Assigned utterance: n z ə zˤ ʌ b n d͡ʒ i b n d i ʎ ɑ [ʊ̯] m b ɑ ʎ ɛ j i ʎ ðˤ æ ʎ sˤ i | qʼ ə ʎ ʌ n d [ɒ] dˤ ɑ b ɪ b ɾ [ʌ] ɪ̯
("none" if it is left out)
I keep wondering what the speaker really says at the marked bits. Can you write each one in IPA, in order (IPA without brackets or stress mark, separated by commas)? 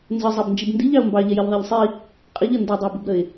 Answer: ʊ̯, ʌ, ə